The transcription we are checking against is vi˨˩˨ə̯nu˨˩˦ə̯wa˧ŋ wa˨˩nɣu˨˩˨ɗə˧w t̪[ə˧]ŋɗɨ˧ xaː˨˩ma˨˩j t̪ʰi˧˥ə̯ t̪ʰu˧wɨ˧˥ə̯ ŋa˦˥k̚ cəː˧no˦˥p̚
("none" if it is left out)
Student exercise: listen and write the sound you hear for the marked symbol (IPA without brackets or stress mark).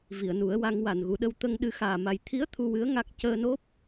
ə˧